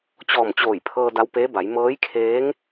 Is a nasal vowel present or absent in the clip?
absent